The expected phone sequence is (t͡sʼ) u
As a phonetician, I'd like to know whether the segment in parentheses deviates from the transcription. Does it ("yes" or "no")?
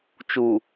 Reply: yes